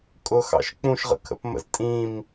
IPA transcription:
kʼ ʊ x ɑ̰ ʃ k͡p ũ ʃ ʁ ə̰ kʰ ə̰ p m ə̰ z tʼ ĩ m

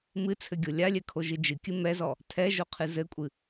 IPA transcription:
m ɨ t͡sʰ ɘ ɡʲ o lʲ a lʲ ɛ kʰ o ʒ ɨ d͡ʒ ɨ kʲ ɨ m ɛ z ɔ | tʰ ɛ ʒ o qʰ ɨ z ɘ kʷʼ ɨ

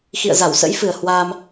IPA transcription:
x ḭ˧˨ ə̯ z a˧˩ w s ə̰˧˥ j f ɨ˨˩ ə̯ h w a˧ m

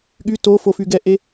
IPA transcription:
ɠ y t o f o f y ɡ ɛ ʔ e

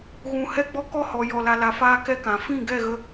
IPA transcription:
ɣ ũ˧ h ɛ˦˨ ɡ͡b ɔ˦ k ɔ˦ h ɔ˨ j ɔ˨ l a˨ l a˨ f aː˧ k ɛ˦ k ã˨ f ĩ˦˨ ɡ ɛ˦˨ ɣ ə˧

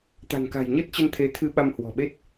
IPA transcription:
t̪ a̤˨˩ n k a̤˨˩ j ɲ ə˦˥ t̚ t͡ɕ ə˧ n t̪ʰ e˨˦ t̪ʰ ɨ˧ ɓ a˧ m h w ɔ̤˨˩ ɓ e˦˥ t̚

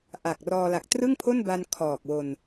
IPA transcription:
ʔ a˨˩ k̚ r ɔː˧ l a˨˩ k̚ t r ɯ˥˩ ŋ pʰ o˥˩ n b a˧ n kʰ ɔː˨˩ k̚ w o˧ n

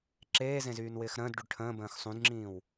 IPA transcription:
ǁ eː z ẽ z yː n w ɪː x ɾ ə̃ː d ɖ y ɖ ʈʰ ə̃ː b ə̃ː x sˤ ũ d ŋ͡ǁ ĩː w

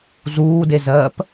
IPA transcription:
z uː d e z ɜː p

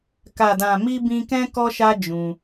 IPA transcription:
k a˨ d ã˨ m i˧ b ĩ˦ k ɛ̃˦ k ɔ˦ ʃ a˦ d͡ʒ ũ˧

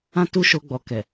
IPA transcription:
ã˦ t u˦˨ ʃ o˧ ɡ͡b ɔ˨ k ɛ˨

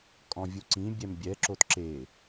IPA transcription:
kʼ ɔ̃ vʲ u ǀ ĩ bʲ ɛ m bʲ ɛ ǁ o t ǁ e

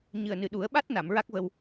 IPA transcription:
ɲ ɨ˨˩ ə̯ n ɨ˨˩ ɗ u˨˩˦ ə̯ ɓ a˦˥ t̚ n a˨˩˨ m ɹ a˦˥ k̚ v ə˧ w

